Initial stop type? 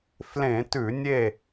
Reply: plain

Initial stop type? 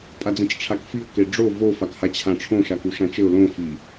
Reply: ejective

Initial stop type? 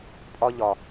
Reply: ejective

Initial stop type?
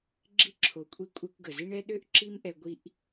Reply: click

